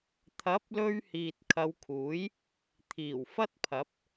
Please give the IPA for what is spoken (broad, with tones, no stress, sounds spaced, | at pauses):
t̪ʰ ɐ˨˥ p̚ l ɵ˧ ɥ h iː˨ t̚ kʰ ɐ˨˧ w kʰ uː˨˥ j | t̪ʰ iː˨˩ w f ɐ˥ t̚ pʰ ɐ˨˥ p̚